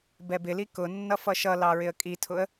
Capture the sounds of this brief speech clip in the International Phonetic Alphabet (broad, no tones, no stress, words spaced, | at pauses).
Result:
bɛbɪli kʊnːʌ fʌʃʌlɑ ɹɪə̯kʼitʰʊə̯